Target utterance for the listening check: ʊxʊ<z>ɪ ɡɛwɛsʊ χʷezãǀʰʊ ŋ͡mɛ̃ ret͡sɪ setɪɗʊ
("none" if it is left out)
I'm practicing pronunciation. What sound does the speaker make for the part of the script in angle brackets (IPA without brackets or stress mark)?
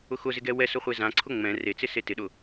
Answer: z